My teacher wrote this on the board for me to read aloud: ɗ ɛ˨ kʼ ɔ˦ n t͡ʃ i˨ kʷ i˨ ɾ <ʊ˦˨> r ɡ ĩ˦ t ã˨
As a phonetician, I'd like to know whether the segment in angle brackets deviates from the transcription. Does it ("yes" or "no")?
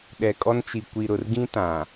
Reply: yes